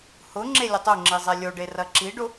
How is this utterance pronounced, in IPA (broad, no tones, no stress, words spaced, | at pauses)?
hʊ ŋ͡ǁelʲʊtˤoŋ͡ǁi zˤɛlʲoɖe rɐǁiɖʊ